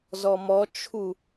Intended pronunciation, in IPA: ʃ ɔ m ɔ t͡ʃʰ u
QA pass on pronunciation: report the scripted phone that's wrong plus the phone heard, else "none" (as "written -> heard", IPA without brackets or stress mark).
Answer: ʃ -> z